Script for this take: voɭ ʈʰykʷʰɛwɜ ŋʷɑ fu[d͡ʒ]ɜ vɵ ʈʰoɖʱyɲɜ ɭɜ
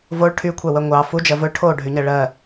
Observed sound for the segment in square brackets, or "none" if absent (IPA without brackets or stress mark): d͡ʒ